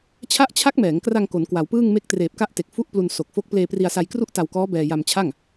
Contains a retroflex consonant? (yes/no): no